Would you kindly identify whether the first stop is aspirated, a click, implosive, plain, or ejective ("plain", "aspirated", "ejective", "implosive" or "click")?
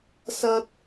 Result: plain